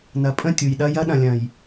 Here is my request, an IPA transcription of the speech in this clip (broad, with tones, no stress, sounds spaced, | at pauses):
n ɐ˨ pʼ ə̃˦˨ tʲ u˨ j ɗ ɐ˦ j ɐ˦ ɗ ɐ̃˨ lʲ ɐ̃˨ j